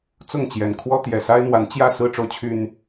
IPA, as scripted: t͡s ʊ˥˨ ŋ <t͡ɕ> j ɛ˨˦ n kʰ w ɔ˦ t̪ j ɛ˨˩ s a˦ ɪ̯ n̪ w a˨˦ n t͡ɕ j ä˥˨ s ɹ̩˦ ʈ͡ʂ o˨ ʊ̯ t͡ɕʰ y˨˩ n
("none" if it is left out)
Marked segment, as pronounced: t͡ɕ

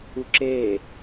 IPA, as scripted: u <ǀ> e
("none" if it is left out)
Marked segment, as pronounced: ǁ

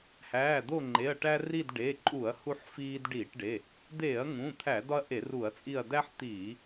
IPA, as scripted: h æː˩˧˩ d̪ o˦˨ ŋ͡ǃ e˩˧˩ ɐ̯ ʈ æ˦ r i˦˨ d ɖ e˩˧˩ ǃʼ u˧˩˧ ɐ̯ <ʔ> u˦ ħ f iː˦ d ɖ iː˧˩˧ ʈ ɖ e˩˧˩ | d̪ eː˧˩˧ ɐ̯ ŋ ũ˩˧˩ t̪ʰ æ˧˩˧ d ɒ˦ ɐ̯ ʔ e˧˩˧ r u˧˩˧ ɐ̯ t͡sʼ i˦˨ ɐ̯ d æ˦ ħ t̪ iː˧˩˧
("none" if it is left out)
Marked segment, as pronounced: h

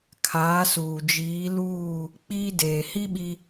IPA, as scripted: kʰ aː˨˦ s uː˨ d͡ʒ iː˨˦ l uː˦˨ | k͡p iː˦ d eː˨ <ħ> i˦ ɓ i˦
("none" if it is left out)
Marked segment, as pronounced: h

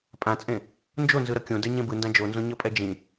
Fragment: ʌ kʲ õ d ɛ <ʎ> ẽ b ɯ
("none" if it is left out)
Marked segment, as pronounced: ɲ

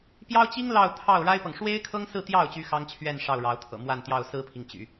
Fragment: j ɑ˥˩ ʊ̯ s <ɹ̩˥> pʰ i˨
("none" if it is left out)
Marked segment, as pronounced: ɹ̩˥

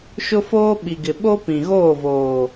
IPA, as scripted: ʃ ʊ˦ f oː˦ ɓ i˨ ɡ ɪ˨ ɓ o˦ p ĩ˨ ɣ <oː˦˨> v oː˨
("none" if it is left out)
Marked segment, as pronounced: oː˦˨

